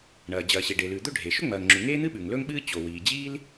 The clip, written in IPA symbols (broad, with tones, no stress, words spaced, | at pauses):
ɳɐː˩ d͡ʑɐː˩ɕe˩ɖe˩lʉ˩ d̪ɵ˥ɖʱe˩ ʃɵ˥ŋ͡mɐː˩ŋŋ͡ǁʉ˩ ŋeː˥n̪ɨ˥ɓʉ˩ŋ lɵ˥ŋɓɨː˥ t͡ɕo˩wiː˩ d͡ʑiː˥l